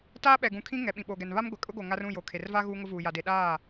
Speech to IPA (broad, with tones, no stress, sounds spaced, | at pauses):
t aː˦ ɓ ɛ˨ ɡ ũ˨ kʰ ĩ˦ ŋ ɛ˨ ɓ ĩ˨ ɓ o˨ ɡ ɛ˨ n β a˦ m ɡʷ ɛ˨ kʼ ʊ˦ ɡ o˨ ŋ a˦ r ũ˦˨ j o˨ kʰ e˨ r v a˦ ɣ uː˦ ŋ ʊ˦ v uː˨ j a˨ d e˨ ɗ aː˦˨